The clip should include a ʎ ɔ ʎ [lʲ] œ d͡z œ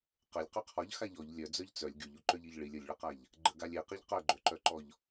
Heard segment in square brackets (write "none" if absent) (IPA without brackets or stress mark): lʲ